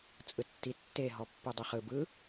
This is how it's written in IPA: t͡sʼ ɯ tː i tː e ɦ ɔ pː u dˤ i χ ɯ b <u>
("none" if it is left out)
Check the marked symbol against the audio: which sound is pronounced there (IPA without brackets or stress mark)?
ɯ